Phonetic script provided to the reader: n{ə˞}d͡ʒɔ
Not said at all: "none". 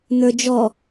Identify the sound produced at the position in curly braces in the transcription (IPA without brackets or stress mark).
ə˞